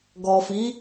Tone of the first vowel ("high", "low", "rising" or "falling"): low